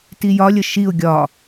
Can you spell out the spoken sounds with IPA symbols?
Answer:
t i j ɒ lʲ ə ʃ i ʊ̯ ɡʲ ɒ

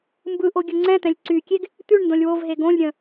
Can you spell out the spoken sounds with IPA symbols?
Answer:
m b ɯ ʔ o ɡʲ ə ŋ͡ǀ ɛ̃ t̪ ɛ̃ lʲ ǀ y kʲ e ɡ | t̪ ʉ ɳ n d õ lʲ w o v ɦ e ɡ õ lʲ ɾʲ ə̃

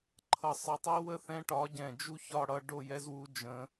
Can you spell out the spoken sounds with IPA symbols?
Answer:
ǃʰ ʌ˧˩ sˤ ə˧˩ tˤ i˦˥ w ə˥˧ θ ɛ̃˦˥ ʈ ɒ˨˥ ɟ ɛ̃˧˩ d͡ʒ u˦˥ ç ɒ˥˧ ɽ ʌ˥˧ ɖ o˥˧ j ɛ˦˥ z w u˦˥ d͡ʒ ə̃˦˥

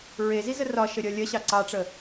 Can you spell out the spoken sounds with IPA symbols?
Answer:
ɹ e z i z ə r ɒ ʃ ə ɾʲ ɒ lʲ ɐ ɕ ɑ ǀ ɑ ʈ͡ʂ ə

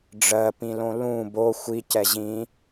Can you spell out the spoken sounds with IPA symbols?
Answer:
ɖ͡ʐ ɜ p ĩ l õ l ũ b o xʷ i c ɛ ʑ ĩ

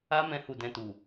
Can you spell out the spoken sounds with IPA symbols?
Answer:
a˦ m ɛ̃˧ h u˨ d ɛ̃˨ t u˨

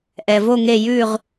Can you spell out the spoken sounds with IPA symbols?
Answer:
ʔ ɛ˩ v o˦˨ ŋ e˦˨ j ʉ˦˨ ʁ

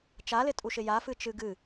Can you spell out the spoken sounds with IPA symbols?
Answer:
t͡ʃ a l ɪ tʼ u ʃ ɪ j a f ɨ t͡ʃ ɨ ɡ ɨ

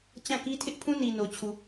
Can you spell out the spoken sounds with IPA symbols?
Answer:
t͡ɕ ã˦˨ k i˦ tʰ ɪ˦ ʔ pʰ ũ˦ n i˨ n o˨ t͡ɕʰ u˨

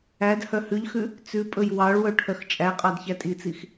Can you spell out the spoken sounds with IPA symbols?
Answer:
æ d h œ h ʉ ʎ x ʉ | t͡s ʉ pʼ ɵ j w ɑ ɭ w œ ʈʰ œ x t͡ʃʼ æ qʼ ɑ d ç æ tʼ i t͡s i x

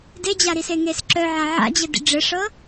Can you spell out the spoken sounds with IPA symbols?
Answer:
d e d͡ʑ a ɾ i s e ŋ e s ǁ œ ʕ a ʕ a̰ d͡ʑ ɘ d ḭ ɖ͡ʐ ɘ ʂ ɤ

